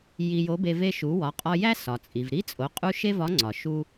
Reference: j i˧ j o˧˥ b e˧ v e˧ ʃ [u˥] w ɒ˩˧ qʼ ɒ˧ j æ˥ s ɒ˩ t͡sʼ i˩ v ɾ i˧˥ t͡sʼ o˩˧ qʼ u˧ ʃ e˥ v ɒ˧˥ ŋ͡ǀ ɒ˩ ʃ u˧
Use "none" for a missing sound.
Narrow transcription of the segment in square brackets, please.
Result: u˩˧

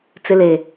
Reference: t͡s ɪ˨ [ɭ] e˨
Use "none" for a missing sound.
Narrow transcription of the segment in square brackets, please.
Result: l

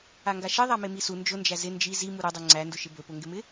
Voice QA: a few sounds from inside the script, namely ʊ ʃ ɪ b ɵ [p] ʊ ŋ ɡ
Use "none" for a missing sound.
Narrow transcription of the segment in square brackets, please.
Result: p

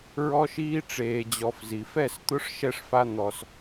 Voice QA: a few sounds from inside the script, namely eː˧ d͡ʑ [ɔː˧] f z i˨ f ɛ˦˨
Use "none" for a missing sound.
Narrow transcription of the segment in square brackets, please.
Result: ɔ˧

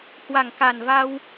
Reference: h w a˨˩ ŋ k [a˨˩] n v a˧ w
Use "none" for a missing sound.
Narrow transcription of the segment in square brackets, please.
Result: a˨˩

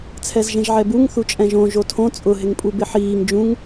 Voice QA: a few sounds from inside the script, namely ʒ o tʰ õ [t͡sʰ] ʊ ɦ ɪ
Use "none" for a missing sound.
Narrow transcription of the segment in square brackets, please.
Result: t͡sʼ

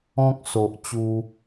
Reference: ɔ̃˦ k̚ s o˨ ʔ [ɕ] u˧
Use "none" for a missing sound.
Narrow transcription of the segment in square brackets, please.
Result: t͡ɕ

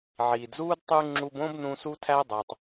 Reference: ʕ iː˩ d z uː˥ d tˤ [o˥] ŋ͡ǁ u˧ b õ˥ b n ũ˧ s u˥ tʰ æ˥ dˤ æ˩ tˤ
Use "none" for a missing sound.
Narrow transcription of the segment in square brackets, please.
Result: u˥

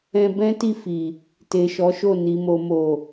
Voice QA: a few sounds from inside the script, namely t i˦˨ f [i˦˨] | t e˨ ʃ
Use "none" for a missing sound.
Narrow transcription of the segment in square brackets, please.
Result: i˨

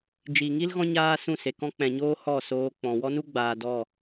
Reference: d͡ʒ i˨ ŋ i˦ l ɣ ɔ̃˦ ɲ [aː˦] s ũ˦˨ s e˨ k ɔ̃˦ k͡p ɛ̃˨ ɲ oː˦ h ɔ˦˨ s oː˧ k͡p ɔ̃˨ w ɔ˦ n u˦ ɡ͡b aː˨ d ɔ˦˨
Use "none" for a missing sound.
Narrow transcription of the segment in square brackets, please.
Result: aː˦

